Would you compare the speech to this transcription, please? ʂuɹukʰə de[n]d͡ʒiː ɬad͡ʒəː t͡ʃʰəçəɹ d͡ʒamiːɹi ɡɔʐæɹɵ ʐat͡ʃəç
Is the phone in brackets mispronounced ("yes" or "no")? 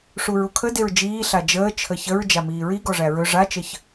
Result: yes